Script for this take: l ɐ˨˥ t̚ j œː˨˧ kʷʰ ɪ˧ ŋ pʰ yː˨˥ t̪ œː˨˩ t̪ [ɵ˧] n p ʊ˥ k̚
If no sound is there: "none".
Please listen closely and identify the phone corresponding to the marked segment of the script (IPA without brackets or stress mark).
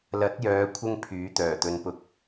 ɵ˧